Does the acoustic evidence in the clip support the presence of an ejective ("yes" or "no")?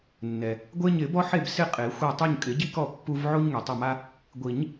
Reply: yes